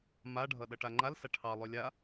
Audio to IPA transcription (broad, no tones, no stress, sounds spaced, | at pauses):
m a ɖʱ ʌ ɗ ʌ ʈ a ŋ͡ǃ a l s a ʈʰ ɑ lˠ ø lʲ a